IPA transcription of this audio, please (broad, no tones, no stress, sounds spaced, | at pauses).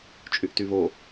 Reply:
t͡ʃʼ y ʔ t y β o